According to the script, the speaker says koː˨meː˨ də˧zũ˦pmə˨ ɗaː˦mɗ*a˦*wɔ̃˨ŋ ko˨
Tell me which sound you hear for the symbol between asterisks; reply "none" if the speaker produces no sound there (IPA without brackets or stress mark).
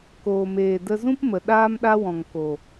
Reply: a˦